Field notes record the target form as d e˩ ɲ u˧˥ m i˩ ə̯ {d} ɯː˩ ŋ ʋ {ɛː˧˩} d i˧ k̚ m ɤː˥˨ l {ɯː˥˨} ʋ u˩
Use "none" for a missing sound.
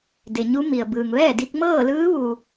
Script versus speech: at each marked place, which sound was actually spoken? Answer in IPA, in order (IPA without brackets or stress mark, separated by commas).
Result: b, ɛː˥˨, ɯː˧˥